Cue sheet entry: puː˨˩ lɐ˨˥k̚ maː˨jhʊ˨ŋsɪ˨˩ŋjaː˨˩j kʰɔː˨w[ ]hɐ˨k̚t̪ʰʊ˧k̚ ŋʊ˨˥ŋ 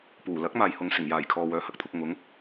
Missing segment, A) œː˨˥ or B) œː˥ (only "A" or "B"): A